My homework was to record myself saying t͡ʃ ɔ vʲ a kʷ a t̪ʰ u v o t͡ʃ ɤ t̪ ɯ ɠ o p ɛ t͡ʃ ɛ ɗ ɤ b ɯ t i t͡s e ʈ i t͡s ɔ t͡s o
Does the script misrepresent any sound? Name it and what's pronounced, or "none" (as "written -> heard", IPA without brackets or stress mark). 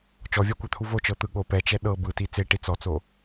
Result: none